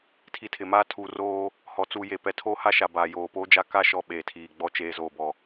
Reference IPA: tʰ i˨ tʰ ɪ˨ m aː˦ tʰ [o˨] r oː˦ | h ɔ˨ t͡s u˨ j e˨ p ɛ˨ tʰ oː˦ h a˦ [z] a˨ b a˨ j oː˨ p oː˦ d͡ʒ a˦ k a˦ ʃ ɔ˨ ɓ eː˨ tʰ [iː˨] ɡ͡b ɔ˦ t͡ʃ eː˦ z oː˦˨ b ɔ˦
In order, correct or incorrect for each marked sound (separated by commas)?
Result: incorrect, incorrect, correct